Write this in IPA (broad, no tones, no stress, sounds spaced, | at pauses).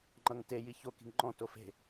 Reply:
ŋ͡ǃ ʌ ŋ t e j i ç o k i̤ ŋ ŋ͡ǃ ɔ̃ t o f e̤